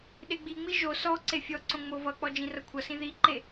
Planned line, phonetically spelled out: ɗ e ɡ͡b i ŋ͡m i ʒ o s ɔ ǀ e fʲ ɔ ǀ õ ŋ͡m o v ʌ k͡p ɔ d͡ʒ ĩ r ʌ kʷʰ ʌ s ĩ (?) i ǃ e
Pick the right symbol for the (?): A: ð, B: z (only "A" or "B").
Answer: A